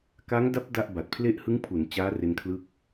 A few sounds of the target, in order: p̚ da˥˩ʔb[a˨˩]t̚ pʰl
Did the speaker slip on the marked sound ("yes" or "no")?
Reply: no